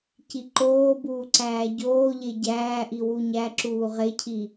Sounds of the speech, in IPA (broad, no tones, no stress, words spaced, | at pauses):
ciǃoːbuː ǀæːɟoːʎe ɟæːʔi wuɲæǁuː ʁecʰi